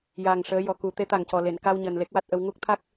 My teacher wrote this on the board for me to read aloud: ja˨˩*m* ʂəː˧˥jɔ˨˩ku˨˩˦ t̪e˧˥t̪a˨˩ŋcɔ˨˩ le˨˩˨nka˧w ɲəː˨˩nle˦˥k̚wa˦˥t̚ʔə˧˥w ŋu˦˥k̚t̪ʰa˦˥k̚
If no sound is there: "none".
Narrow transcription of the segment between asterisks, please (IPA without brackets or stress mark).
ŋ